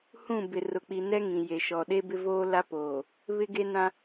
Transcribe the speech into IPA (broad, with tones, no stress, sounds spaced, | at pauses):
h ũ˦˨ b ɪ˨ r ʊ˨ k͡p i˨ n ɛ˦ ŋ ĩ˨ j e˨ ʃ ɔ˨ ɗ e˦ b ɪ˦ v oː˦ l a˦ p oː˨ | β ɪ˦ ɡ e˦ n ã˦